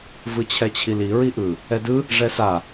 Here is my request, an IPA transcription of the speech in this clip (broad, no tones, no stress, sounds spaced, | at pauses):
v ɯ t͡ɕʰ ɛ t͡ɕʰ i l i ɹ i ʔ ɯ | ɛ d ɯ | ʐ ɛ s a